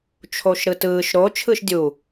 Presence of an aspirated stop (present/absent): present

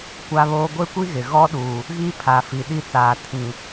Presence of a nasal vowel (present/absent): present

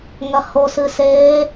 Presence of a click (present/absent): absent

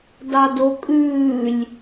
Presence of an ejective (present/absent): present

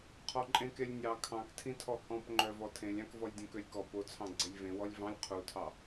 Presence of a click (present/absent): present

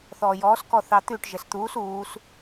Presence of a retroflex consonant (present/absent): present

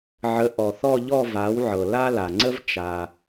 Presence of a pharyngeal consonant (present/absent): present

